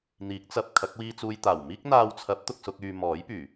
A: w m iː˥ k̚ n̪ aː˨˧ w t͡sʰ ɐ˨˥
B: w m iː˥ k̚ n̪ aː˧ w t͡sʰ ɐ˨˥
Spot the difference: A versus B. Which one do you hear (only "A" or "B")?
B